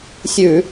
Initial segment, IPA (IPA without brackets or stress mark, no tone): sʲ